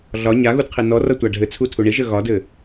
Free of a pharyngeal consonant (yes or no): yes